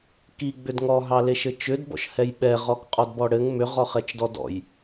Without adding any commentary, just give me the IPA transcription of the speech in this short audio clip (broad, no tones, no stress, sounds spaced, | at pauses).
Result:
k i ɡ͡b ʏ d ŋ ɔ ɦ ɑ l e ʃ ɘ t͡ʃ ʏ d b ɔ̰ ʃ h ɛ j ɓ ɛ ʁ ɔ k qʼ ɔ d b ɔ ɽ ɘ ŋ m ʏ ʁ ɔ χ ɛ t͡ʃ d ɔ d ɔ̰ j